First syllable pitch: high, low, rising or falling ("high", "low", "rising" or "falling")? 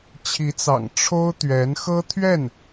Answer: rising